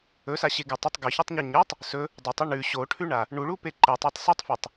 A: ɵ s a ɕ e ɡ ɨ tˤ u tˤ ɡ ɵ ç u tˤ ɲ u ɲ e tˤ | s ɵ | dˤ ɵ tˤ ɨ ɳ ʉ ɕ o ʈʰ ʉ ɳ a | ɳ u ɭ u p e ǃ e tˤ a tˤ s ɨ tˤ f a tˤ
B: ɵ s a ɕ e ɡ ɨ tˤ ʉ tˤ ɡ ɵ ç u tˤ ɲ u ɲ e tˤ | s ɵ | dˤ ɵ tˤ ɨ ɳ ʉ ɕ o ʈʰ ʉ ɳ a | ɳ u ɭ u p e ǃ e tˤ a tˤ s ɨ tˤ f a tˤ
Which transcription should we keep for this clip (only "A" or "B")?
A